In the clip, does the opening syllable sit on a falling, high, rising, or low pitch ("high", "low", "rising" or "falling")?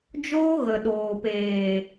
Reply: high